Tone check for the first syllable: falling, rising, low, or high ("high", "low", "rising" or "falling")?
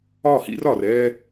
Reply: falling